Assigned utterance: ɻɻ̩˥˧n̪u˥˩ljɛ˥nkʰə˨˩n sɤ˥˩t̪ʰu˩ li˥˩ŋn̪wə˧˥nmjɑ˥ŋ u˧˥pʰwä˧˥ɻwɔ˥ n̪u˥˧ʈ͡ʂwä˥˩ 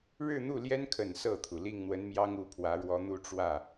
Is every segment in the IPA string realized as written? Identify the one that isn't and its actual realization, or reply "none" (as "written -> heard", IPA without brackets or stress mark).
none